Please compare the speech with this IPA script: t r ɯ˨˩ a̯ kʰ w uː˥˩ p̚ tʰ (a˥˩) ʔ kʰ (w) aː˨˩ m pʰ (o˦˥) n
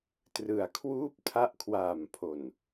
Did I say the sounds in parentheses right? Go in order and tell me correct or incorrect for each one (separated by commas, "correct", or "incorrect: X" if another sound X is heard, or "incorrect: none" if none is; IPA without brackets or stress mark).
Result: incorrect: a˦˥, correct, incorrect: o˨˩